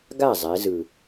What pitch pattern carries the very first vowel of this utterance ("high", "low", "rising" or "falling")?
falling